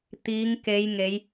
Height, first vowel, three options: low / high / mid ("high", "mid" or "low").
high